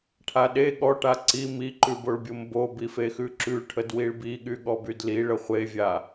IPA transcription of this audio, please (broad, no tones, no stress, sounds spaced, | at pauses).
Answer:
ʈʰ a ɗ e ɠ ɔ ʈ a ǀ i m i ǃ ʉ b o ɭ bʲ o m b o b i f e x ʉ ǁ ʉ ʈʰ ə d w i ɭ b i ɠ y ɠ ɔ b y d l i ɭ ə χʷ e vʲ a